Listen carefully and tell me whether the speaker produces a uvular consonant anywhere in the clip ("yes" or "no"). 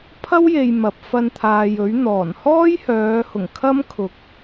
no